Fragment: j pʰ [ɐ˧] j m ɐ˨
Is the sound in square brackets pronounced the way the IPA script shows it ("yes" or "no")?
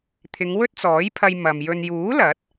yes